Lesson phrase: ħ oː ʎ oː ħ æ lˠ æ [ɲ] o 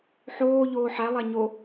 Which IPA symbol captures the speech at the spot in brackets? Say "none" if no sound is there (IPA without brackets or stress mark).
ɲ